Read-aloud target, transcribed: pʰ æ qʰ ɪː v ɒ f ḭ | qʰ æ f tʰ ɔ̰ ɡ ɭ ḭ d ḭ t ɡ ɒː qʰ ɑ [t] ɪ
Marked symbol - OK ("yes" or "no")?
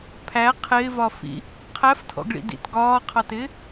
yes